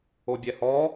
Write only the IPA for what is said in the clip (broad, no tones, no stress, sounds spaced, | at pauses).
o bʲ ɛ h ɔ